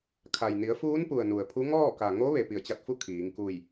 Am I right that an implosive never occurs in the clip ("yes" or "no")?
yes